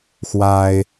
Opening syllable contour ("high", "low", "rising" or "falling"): high